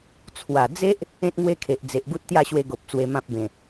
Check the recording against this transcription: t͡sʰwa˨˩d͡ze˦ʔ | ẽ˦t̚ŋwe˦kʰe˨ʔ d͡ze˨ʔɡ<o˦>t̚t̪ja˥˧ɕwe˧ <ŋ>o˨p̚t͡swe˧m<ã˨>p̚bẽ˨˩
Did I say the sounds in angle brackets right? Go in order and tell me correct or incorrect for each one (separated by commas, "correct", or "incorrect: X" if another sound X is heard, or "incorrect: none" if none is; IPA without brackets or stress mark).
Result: incorrect: u˦, incorrect: ɡ, incorrect: ã˦